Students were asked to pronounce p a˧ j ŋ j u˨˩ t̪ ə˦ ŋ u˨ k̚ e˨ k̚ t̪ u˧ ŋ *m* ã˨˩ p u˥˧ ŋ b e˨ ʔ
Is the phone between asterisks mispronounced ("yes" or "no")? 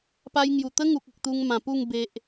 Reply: no